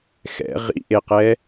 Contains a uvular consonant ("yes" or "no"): yes